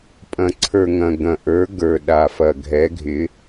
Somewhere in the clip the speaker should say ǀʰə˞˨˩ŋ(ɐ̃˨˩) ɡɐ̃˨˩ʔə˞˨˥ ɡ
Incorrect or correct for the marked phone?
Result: correct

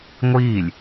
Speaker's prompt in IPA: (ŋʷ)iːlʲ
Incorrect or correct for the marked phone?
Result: correct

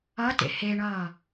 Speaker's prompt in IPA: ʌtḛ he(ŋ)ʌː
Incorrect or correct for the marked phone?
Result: incorrect: ɳ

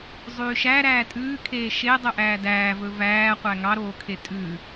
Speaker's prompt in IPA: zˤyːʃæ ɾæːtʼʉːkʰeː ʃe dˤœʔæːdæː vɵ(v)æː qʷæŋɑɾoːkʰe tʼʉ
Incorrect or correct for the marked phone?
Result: correct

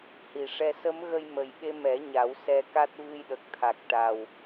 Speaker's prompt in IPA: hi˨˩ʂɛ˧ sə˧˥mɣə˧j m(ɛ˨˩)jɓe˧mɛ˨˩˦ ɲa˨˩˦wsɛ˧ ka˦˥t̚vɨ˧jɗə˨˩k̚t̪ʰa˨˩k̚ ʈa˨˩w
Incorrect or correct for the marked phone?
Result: incorrect: ə˨˩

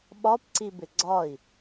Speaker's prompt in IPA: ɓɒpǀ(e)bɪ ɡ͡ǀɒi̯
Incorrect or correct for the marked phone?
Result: incorrect: i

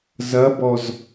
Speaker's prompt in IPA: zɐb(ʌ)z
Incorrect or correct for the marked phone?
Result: incorrect: ɔ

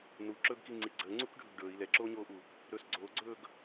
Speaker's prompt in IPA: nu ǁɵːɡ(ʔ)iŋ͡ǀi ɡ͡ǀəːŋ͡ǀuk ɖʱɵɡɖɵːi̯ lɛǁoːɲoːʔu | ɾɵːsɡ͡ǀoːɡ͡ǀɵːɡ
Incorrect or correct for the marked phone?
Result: incorrect: k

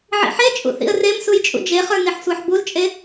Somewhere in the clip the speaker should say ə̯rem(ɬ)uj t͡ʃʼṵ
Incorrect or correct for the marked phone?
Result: incorrect: s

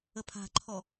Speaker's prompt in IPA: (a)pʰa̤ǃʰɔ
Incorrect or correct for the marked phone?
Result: incorrect: ə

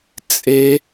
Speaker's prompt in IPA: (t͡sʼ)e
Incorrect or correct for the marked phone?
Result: correct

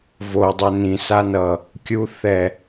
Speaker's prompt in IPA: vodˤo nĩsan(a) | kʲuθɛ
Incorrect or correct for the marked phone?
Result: incorrect: ʌ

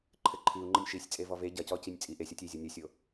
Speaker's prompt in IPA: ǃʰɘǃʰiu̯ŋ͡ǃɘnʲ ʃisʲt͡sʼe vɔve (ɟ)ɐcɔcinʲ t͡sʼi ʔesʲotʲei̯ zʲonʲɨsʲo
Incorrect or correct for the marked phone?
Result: correct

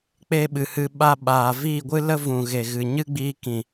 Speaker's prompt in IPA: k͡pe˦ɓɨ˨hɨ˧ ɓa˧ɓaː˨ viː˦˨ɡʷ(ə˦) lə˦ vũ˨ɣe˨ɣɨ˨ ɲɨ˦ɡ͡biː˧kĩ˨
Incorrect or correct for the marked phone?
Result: incorrect: ɨ˦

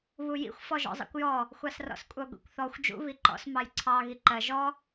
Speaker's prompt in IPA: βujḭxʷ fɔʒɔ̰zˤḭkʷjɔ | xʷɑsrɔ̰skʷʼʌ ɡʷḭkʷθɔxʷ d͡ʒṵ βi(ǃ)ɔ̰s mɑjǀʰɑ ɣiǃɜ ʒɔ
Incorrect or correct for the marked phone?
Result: correct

